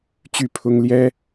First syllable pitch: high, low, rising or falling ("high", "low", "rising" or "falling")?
falling